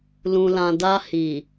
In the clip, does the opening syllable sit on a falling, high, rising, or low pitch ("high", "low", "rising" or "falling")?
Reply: low